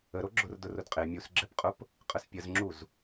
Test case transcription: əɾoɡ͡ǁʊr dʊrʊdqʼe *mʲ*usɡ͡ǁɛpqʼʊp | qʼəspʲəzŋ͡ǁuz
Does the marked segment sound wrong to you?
no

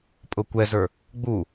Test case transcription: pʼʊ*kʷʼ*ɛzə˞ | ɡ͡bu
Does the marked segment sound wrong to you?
yes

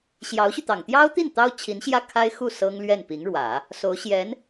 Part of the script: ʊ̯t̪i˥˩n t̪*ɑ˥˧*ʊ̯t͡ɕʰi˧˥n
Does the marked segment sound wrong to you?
yes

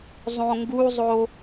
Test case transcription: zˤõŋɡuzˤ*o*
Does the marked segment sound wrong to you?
no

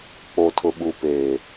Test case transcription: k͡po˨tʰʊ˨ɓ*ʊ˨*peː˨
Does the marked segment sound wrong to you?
yes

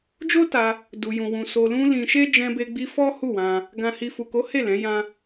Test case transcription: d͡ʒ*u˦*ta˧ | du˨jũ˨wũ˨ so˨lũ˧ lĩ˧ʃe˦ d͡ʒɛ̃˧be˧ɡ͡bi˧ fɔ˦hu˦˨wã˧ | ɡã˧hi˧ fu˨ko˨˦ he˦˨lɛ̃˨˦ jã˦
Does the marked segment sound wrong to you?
yes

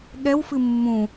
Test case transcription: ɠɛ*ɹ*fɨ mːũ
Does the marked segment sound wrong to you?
yes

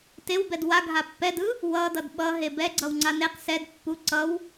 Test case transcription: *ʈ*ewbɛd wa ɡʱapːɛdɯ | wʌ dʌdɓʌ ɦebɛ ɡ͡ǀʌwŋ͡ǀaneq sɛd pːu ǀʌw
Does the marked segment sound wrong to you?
yes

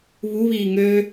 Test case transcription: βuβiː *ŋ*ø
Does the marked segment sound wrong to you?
no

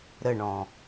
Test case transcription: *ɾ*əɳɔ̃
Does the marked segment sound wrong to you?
no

